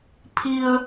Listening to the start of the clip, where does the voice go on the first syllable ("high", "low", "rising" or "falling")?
low